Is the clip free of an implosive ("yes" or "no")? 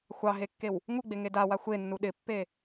no